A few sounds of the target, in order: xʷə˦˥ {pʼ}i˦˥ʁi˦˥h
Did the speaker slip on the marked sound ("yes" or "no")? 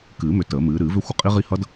yes